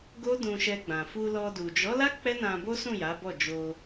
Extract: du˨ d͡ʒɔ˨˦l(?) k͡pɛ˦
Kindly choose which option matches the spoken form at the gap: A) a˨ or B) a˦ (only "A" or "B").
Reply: B